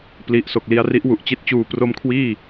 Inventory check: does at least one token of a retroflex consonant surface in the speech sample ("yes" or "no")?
no